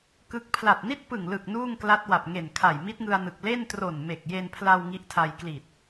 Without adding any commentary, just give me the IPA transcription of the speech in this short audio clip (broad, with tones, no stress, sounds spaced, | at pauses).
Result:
k ɯ˥˩ k̚ pʰ l a˨˩ t̚ n i˥˩ t̚ p ɯ˨˩ ŋ l ɯ˨˩ k̚ n uː˥˩ ŋ k l a˦˥ t̚ w a˨˩ p̚ ŋ e˨˩ n kʰ a˨˩ j m i˦˥ t̚ ŋ ɯ˧ a̯ n ɯ˨˩ k̚ l e˥˩ n t r o˨˩ n m e˨˩ k̚ j e˧ n pʰ l a˧ w ŋ i˦˥ ʔ tʰ a˧ j k l i˨˩ t̚